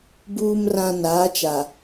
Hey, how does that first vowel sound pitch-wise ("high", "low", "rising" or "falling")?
low